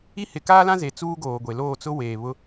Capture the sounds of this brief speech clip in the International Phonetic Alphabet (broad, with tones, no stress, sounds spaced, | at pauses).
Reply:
i˦ h ɪ˨˦ k aː˦ l ã˦ z e˨ t͡s uː˦ ɡ oː˨ ɡʷ e˨ l oː˦˨ t͡s ʊ˦ w eː˨ β ʊ˦